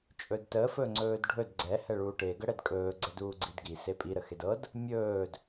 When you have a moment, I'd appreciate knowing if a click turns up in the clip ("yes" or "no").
yes